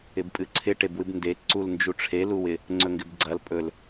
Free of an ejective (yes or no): no